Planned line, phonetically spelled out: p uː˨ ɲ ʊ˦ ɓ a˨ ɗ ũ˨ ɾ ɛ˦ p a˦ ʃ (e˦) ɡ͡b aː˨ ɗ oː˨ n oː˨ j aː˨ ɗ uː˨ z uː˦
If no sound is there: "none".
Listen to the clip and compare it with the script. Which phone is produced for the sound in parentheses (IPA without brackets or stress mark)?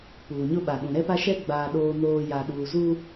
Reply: ɛ˦